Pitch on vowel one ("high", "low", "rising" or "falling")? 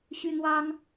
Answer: high